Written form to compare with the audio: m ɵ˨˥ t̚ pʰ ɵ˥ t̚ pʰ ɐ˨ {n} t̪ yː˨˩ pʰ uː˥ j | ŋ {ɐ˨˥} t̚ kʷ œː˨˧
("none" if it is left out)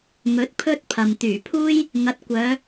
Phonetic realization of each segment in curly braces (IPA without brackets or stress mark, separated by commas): m, ɐ˨˥